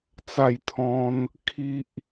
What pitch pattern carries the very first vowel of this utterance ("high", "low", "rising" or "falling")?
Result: falling